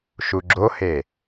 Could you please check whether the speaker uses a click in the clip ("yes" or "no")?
yes